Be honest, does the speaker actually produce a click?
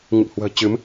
no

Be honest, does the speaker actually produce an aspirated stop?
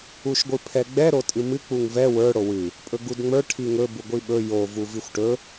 yes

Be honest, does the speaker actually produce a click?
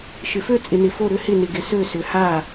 no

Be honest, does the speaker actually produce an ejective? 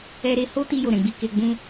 no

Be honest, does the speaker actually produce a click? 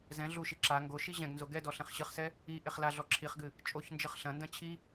yes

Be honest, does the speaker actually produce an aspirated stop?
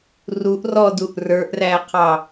yes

